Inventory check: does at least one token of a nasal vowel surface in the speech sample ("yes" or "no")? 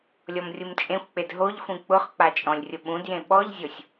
yes